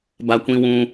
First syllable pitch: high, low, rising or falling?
high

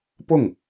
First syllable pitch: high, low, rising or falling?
falling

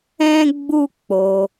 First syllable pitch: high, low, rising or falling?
high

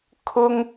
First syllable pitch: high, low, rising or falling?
high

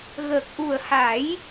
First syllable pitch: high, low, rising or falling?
low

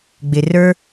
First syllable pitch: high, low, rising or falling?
low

